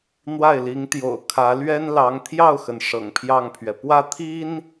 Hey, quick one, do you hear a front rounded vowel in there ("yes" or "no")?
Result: no